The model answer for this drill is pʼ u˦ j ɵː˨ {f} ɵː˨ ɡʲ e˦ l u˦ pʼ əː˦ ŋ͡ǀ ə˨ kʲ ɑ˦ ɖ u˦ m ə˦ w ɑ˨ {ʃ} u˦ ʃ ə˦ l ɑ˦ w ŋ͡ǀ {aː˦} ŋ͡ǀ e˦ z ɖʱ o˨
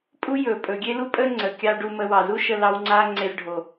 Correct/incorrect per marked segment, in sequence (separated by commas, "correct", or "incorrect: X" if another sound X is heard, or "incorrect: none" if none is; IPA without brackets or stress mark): incorrect: pʼ, incorrect: z, correct